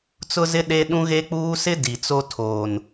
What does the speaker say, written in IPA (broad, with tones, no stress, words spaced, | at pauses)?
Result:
t͡sʊ˦zɪ˦ ɗe˦ ɗũ˦ɣe˦k͡puː˦sɪ˦ di˨t͡so˦ tʰoː˨n